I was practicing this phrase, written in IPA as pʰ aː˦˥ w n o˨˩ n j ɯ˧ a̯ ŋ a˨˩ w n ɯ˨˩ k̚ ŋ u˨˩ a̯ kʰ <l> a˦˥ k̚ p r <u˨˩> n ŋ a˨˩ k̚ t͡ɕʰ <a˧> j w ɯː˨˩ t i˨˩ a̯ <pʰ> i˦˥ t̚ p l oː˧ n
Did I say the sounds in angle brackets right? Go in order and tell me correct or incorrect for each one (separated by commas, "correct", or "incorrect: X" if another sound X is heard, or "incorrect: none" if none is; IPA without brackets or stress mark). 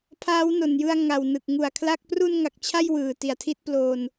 correct, incorrect: u˧, incorrect: a˥˩, incorrect: tʰ